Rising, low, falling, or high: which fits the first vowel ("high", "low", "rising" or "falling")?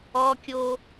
high